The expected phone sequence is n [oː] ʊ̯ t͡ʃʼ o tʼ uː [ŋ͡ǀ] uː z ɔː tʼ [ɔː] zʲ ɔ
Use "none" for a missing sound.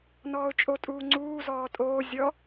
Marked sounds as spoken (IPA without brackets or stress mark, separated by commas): ɔː, ŋ͡ǀ, oː